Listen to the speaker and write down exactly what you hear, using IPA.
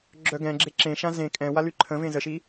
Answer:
ɡ͡ǁ œ ɡ ɛ̃ ɡ͡ǁ e ǁ ẽ ʃ ã z ẽ kʼ ɛ̃ w a l y ǃʰ ə̃ v ẽ z ə ʃ i

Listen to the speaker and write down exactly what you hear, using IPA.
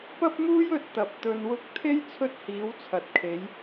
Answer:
p ɐ˥ p̚ m uː˥ j ɵ˧ t̚ t̪ ɐ˨ p̚ t̪ ɵ˧ n w ʊ˥ k̚ t̪ʰ e˥ j t͡sʰ ɵ˥ t̚ h iː˨˥ w t͡sʰ ɐ˨ t̚ kʰ e˨˥ j

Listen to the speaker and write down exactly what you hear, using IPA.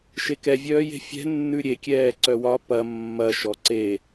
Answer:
ʃ e k ɛ vʲ œː j e̤ fʲ ɛ̤ nː ʉ ɾʲ e kʲ ɛː ǀ œ w ɒ p ɐ mː ɐ ʃ ɔ ǀ e

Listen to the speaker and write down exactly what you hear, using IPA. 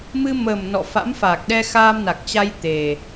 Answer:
m ɨ˧ m əː˨˩ m n ɔ̰˧˨ f a̰˧˥ m f a˨˩ k̚ ɗ ɛ˧ x aː˧ m n a˨˩ k̚ t͡ɕ a˧ j t̪ e˨˩

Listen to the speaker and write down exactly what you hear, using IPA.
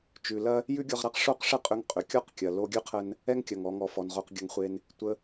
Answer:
t͡ʃ ʉ˩ l ɐ˥ | j ʉ˥ ɡʲ ɔ˧ ʁ ɾ a˥ q ʂ o˥ q ʂ ə˥ qʼ ʏ˧ ŋ qʼ ʏ˩ kʲ ɔ˥ q kʲ ɐ˩ l o˧ ɡʲ ʉ˥ qʰ ə˧ n | ɛ˥ ŋ kʲ ɐ˩ ŋ ɔ˩ ŋ ɔ˩ f ɔ˩ n ʁ o˧ q ɡʲ ɐ˧ ŋ χʷ e˧ n | tʷ ə˧

